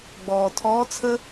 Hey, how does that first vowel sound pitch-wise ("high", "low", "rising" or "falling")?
low